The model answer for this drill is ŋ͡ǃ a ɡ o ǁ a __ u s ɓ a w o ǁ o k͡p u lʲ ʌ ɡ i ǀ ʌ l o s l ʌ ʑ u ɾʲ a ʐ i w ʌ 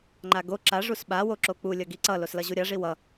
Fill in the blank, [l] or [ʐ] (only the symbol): ʐ